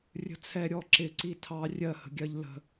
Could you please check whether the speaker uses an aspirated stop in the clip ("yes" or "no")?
yes